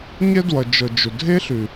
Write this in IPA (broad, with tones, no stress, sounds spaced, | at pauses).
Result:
ɲ ɛ˦ d w ʌ˨ d͡ʒ ɤ˨ d͡ʒ ʊ˨ dʱ e˦ ɬ ʉ˨